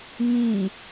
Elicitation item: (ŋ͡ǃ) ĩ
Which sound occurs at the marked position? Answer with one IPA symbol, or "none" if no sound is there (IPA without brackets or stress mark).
ŋ